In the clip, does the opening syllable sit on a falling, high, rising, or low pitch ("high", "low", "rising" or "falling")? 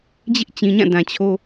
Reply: high